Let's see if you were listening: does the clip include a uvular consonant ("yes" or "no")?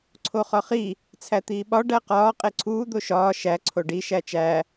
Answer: yes